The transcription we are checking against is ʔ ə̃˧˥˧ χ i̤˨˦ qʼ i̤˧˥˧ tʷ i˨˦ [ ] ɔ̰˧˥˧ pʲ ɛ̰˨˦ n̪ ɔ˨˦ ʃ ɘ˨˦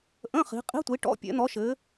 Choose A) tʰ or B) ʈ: B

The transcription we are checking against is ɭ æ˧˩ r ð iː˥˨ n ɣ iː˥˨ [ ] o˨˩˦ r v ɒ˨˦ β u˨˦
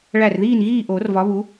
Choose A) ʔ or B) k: A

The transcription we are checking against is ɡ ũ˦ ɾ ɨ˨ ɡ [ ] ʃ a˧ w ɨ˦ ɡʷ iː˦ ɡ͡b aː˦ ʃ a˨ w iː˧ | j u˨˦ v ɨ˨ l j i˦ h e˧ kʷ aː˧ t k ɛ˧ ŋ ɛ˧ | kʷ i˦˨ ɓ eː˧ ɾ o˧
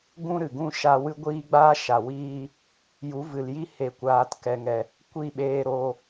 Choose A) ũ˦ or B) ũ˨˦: A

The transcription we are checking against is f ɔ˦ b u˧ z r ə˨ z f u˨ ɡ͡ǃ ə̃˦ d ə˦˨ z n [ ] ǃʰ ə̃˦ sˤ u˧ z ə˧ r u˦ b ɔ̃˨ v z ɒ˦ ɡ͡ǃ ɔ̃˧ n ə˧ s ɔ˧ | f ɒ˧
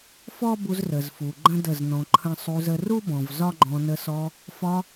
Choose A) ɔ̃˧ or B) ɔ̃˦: A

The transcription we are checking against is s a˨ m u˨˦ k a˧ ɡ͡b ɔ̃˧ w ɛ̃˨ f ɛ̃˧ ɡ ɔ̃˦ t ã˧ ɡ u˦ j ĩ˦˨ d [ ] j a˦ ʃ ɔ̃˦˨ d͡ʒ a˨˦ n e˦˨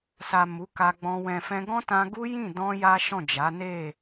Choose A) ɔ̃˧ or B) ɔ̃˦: A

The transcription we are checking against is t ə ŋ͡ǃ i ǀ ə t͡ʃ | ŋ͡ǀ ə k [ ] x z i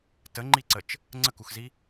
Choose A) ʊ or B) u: B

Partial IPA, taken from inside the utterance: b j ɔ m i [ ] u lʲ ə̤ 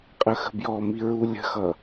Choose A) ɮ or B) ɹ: B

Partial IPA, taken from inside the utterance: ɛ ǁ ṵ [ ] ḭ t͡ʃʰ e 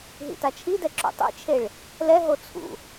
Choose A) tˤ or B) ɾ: A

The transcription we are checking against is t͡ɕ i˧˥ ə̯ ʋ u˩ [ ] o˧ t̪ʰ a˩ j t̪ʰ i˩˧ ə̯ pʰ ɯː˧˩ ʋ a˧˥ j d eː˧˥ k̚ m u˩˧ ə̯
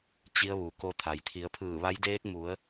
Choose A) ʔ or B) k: B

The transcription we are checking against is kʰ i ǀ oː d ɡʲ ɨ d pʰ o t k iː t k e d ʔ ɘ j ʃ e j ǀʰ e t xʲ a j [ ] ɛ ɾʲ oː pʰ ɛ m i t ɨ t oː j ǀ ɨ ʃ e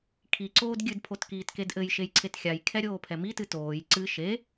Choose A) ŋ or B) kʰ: B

